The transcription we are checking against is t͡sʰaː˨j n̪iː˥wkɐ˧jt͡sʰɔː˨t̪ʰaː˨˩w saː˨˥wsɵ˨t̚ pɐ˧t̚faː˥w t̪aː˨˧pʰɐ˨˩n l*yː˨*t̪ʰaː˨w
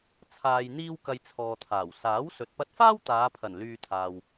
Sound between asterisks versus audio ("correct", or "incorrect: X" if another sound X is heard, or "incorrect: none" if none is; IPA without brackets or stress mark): incorrect: yː˧